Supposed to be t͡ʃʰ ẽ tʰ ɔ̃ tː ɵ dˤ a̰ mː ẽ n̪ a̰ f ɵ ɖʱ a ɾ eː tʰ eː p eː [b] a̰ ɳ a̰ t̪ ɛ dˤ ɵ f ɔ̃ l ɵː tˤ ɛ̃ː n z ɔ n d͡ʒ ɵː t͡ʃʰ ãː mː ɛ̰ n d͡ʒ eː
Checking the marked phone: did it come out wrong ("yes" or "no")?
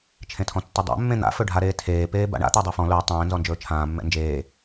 no